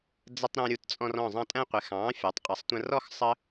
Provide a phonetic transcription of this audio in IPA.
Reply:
d͡zə˧tˤɾɛ̃˧ ɾʲu˧tt͡sʼɔ̃˧r ɔ̃˧˩zˤɑ̃˧ tʼæ̃˧qʷɪ˩˧xɑ̃ː˩˧ fʲɑ˩˧tˤqʼʌ˩˧sˤtʷə̃˧rɔ˥˧x sˤə˥

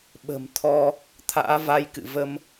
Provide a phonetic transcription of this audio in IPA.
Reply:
ɓə̤˨˩mt̪ʰɔ˧ | t̪ʰa̰ː˧˥va˧jkɨ̰˧˨və˧m

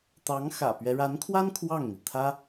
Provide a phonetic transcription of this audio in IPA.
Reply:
t̪ɑ˧˥ŋ xä̰˨˩pɥɛ˦ ɻa˧˥nkʰwa˥n kʰwɑ˥˩ŋn̪i˩t̪ʰä˥

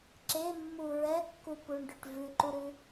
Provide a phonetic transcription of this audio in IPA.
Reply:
ǁemːu ɹɛkːupuɳɖʉʈ vʉǃuɾʉ

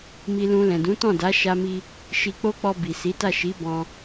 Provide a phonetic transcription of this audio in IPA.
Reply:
mi˧lũ˧ lɛ̃˨dũ˨˦tɔ̃˦˨ da˨˦ʃa˧mi˧ | ʃi˧k͡po˦k͡pɔ˧ bi˨ si˨˦ta˦˨ ʃi˨˦ bɔ̃˧

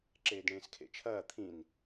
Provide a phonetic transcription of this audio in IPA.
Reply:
ǁeːdɳẽːskʰḛt͡ʃʰɐː t̪ʰĩn

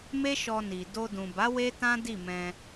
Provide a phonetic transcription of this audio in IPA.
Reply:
me˦ʃɔ˧ni˨ do˧dũ˨ba˨˦ we˦tã˦ di˦˨ mɛ̃˧

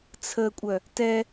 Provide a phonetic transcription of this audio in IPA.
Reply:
t͡sʰəkʷʼœ | tɛ

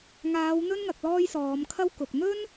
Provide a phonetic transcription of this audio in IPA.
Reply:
ŋaː˨˧wn̪ɵ˥nŋɐ˨k̚ lɔː˥jsɔː˨˧m kʰɐ˥wkʊ˨k̚ n̪ɵ˥n

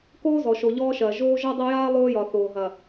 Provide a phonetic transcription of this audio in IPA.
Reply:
koː˦zɔ˨ʃo˨ ʎɔː˦ʃɐː˨ ʒoː˦ ʒɒ˦dˤɐ˦jaː˦ lˠoː˦jɒ˨ θoː˨ɦɐ˨

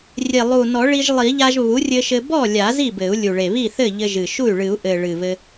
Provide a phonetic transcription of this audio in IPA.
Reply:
rʲe˨˩lˠu˨˩ nɔ˨˩˦ɭi˧ʒlˠi˨˩˦ʎa˧ʒ βu˩˥rʲɘ˧ʃɘ˧ bɔ˥˩lʲa˨˩˦ zi˥˩bɘ˨˩˦u̯lʲu˨˩ɭe˨˩ βi˥˩θɘ˥˩ ʎɘ˧ʒɨ˨˩ʃu˥˩y̯ ɭɨ˨˩˦u̯ʔɘ˨˩ ɭɨ˨˩βɘ˧

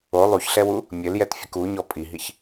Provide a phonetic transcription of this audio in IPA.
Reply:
o lˠuçɬɛwu | mʲɘljɛtfʲək uɲɔ pʼiɦiç

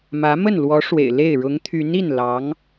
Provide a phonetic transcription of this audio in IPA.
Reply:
mä˧˥ mə˥˩nlwɔ˧˥ ʂwḛ˨˩ɪ̯le˥˩ɪ̯ ɻʊ˧˥ŋt̪ʰy˧˥ni˥˩n lɑ˧˥ŋ

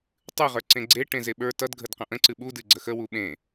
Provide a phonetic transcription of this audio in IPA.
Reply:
tˤɨʁə˞ ǀẽɡ͡ǀe ʈẽzeɓə˞ tʌdɡʱədqə̃ ʔə̃ǀɨ ɓudɨ ɡ͡ǀəxə wuɓẽ

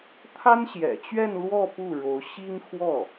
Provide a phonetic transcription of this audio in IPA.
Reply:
t̪ʰa˥nɕjɛ̰˨˩ t͡ɕɥɛ˥˧nlwɔ˥˧ pu˥˩ɻo˧˥ʊ̯ ɕi˥ŋxwɔ˥˩

